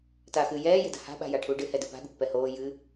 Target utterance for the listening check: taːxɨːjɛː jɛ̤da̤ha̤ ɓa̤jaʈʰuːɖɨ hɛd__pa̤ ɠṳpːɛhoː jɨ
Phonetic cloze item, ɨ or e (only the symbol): ɨ